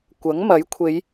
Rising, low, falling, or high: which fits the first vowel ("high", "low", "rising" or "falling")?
rising